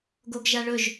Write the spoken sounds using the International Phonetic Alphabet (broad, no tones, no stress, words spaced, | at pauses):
ɡoɡʒaɭɵʒ